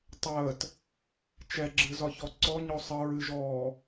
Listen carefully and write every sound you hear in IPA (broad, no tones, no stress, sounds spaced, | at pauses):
tˤ əː t | t͡ʃ ɛ ɡ͡ǁ ɨ z ɒ ç ɔ ǀ ɔ ɲ ɔ sˤ ə ɹ ɨ ʒ ɔː